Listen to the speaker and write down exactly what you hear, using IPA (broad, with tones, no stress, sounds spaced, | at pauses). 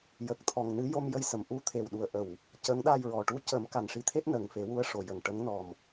j ə˨˩ k̚ t̪ʰ ɔ˨˩ ŋ n ɨ˧˥ j o˧ m j ə˧ j s ə˨˩˨ m ʔ u˧ t̪ʰ e˨˩ w ɗ u˨˩˨ ə̯ ʔ ə˨˩˨ w | c ə˧˥ ŋ ɗ a˧ j ɹ ɔ˨˩ ʈ u˧˥ c ə˨˩˦ m k a˨˩ n ʂ i˧˥ t̪ʰ e˦˥ t̚ n ə˨˩ ŋ f e˨˩˦ w u˧˥ ə̯ ʂ o˨˩ j ə˨˩ ŋ ʈ ə˧˥ ŋ n ɔ˨˩ m